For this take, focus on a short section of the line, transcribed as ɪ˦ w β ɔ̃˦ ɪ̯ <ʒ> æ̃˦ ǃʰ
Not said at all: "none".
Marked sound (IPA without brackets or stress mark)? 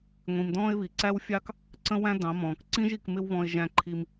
ʒ